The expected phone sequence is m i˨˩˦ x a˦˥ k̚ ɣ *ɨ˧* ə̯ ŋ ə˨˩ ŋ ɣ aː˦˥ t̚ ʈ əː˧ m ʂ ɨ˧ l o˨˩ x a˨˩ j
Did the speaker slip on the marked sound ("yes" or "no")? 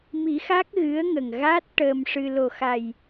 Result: yes